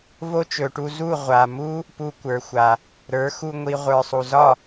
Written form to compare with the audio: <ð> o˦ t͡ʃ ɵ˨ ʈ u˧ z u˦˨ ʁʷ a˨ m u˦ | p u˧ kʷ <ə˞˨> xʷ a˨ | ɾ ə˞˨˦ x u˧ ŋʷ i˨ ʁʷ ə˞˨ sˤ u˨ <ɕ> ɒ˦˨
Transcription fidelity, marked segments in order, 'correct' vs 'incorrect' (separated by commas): incorrect, correct, incorrect